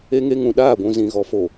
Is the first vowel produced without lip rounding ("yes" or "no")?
yes